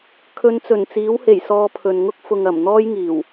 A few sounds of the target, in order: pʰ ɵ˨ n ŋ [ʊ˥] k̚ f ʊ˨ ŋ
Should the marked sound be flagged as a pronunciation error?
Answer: no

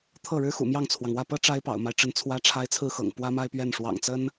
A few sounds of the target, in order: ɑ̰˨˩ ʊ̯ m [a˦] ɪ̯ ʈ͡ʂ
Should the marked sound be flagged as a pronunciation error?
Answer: no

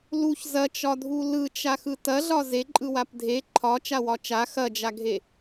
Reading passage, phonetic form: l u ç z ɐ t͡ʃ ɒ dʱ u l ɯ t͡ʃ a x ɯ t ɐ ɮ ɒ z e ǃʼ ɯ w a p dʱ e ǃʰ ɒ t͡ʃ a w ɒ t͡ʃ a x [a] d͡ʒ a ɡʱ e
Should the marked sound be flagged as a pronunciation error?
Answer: yes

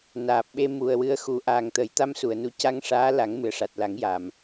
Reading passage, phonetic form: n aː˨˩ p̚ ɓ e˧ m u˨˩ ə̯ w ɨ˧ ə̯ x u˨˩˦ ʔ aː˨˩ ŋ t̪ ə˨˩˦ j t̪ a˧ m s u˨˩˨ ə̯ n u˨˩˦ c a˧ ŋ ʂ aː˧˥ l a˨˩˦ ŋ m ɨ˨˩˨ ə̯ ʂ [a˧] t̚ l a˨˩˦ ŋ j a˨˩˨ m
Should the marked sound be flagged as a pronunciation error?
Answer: yes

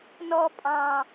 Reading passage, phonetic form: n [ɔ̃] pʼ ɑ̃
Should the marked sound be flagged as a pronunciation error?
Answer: yes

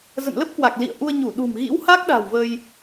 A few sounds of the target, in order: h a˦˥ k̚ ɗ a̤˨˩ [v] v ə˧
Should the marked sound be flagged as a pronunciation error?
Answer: yes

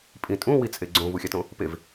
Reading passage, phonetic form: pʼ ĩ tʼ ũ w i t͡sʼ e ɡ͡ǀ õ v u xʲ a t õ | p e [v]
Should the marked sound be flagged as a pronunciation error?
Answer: no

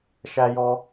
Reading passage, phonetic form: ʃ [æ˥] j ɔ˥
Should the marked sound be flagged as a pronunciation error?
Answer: no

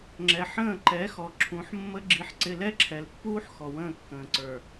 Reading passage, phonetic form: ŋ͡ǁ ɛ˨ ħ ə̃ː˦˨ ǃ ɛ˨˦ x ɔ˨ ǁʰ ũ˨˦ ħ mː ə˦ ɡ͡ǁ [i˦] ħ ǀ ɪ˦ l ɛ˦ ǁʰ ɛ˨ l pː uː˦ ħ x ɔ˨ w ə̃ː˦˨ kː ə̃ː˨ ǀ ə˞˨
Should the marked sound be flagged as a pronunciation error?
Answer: no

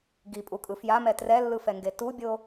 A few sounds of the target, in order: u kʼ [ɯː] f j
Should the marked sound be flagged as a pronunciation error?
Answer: yes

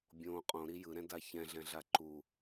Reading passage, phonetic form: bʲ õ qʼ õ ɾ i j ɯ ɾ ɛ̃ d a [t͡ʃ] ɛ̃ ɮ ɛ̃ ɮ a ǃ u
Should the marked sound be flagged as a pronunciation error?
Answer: yes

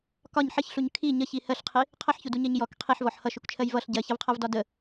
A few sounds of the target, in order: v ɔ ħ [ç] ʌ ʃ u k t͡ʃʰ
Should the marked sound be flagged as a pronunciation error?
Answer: yes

